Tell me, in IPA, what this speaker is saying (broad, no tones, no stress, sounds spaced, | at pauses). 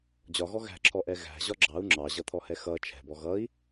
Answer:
d͡ʑ ɒ ɣ ɔ ɣ æ̤ ǁʰ ɔ ʔ ɛ ɣ æ̤ ʑ ɒ ɡ͡ǁ ɑ u̯ ŋ͡ǁ ɑ ʑ ʌ t̪ʰ ɔ h ɛ x ʌ t͡ʃʰ ɛ̤ b ɔ ɣ ʌ i̯